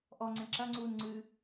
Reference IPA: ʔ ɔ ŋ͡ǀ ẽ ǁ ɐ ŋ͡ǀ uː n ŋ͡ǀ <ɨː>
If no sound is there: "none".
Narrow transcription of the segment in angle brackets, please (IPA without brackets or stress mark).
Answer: ɨː